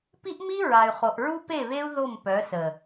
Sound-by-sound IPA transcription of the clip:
pi˦ʔmi˦ɹa˨y̯ χo˨ʔɹu˦pe˦˨βe˦u̯ ðo˦˨mpœ˨˦sə˨

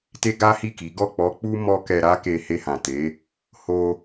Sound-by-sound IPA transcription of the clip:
te˦ɡa˦hi˦˨ki˨˦ ɡɔ˦˨k͡pɔ˨˦ k͡pu˦ mɔ˦ kɛ˧ɾa˦ke˧ he˧hã˨ te˨˦ | ho˧

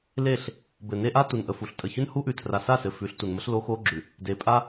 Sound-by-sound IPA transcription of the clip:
le˦˨ɬ | bɘ˨ne˦ʔa˦ tu˨nʔə˨fu˨ɬ tʼə˨çʉ˦nhu˦ʔʉ˨ tʰra˨sa˦˨sɘ˨ fʉ˨˦ɬtu˨nmə˦ɬ lo˦xo˦ ɡ͡ǁʉ˨ | de˨˦pʼa˦

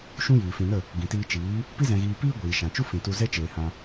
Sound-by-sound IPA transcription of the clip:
ʃũ˦jiː˨fĩ˧ nə˦˨ | ɡĩ˨tiː˧t͡ʃiː˨˦ | pi˦zɛ̃˧ɣiː˧piː˦ ɡʷiː˨ʃã˨t͡ʃu˦ fĩ˨tu˧zɛ˦t͡ʃeː˨ hã˧

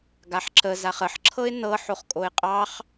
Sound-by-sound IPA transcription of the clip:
ɡaħǁə zaχəħǁʰɤɪ̯ nɤ ħoχkʼoɪ̯qʼɑχ

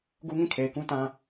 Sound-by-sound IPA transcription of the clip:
ɡu˦ŋĩ˦˨ kʰe˨ɪ̯kũ˦tã˦

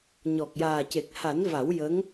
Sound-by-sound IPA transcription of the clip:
ɲɔ˨˩k̚jaː˨˩ce˨˩k̚ ha˨˩˦nva˨˩˦wjə˧˥ŋ

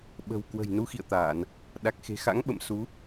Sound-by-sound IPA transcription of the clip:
ɓə̤˨˩wkwə̤˨˩j nu˨˦xḭ˧˨ə̯t̪aː˧˩˨n | ɗa˨˩k̚xe̤˨˩xa̰˧˥ŋɓə̰˧˨m su˨˦

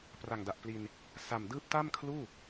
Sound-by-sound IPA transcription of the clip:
pra˨˩ŋda˨˩ʔpli˧n | sa˨˩m dɯː˦˥p̚ta˥˩mkʰluː˥˩

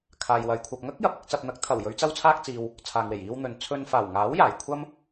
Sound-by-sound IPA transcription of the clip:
kʰaː˨jwɐ˨j kʷʰɐ˨p̚ŋɐ˥k̚jɐ˨p̚ɪ˧k̚ t͡sɐ˨p̚n̪ɐ˨˥k̚t̪ʰɐ˨˩w jɵ˨˧ɥt͡sɐ˧wt͡sʰaː˧k̚t͡siː˨w | t͡sʰaː˧ŋwe˨˩j iː˧wn̪ɵ˨n t͡sʰɵ˧n faː˨˩wŋaː˨˥w jaː˨˩j kʷʰɐ˥m

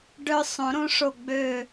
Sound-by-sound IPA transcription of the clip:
ɖœ˧ sˤõ˨˩˦ɾõ˧˥ʂo˧˩ ɡ͡bø˧˩

